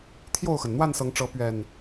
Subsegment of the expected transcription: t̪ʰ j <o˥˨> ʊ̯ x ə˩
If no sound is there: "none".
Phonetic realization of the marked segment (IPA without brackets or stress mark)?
o˥˨